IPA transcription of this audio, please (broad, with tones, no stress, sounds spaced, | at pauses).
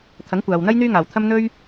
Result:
t̪ʰ ɐ˨˥ ŋ kʷ aː˨ w n̪ ɐ˥ j n̪ yː˥ ŋ aː˨ w t̪ʰ ɐ˥ m n̪ ɵ˥ ɥ